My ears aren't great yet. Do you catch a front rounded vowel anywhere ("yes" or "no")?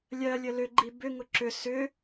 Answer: yes